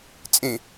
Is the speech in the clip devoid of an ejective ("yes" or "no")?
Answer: no